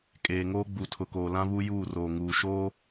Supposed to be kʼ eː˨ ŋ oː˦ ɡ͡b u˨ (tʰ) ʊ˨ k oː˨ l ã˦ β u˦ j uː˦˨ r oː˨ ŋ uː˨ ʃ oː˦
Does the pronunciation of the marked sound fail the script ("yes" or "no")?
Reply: no